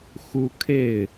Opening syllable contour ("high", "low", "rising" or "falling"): high